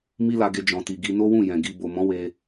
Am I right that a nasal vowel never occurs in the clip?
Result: no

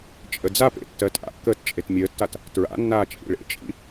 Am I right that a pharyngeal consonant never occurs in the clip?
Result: yes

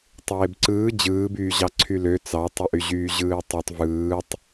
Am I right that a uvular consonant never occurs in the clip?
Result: yes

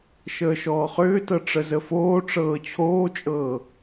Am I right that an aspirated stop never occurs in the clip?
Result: no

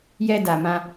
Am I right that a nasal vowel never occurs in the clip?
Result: no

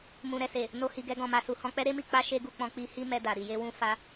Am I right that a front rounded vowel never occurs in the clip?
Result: yes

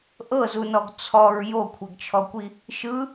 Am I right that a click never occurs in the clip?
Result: yes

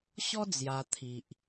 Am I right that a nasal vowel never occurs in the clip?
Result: yes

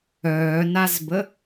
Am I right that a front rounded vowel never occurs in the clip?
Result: no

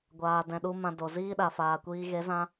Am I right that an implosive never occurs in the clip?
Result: no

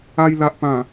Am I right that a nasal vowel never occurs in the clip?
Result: no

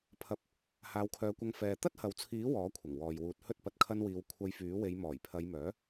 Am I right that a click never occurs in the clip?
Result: yes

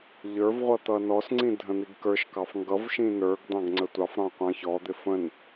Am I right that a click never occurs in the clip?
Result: no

